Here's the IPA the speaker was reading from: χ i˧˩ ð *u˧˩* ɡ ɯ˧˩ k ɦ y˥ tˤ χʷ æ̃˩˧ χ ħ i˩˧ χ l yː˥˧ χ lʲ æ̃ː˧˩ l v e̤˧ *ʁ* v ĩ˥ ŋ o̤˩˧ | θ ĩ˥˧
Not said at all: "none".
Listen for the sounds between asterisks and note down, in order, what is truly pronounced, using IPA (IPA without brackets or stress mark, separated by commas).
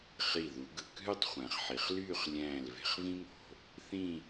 u˩˧, χ